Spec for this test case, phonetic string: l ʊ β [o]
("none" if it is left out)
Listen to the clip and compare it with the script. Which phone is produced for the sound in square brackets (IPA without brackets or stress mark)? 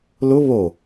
o